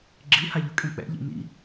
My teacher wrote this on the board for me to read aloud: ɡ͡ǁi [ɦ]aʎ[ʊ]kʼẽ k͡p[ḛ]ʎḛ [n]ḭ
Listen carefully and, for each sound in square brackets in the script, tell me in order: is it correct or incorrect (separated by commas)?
incorrect, correct, incorrect, correct